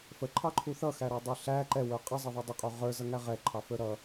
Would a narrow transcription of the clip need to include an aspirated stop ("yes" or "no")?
yes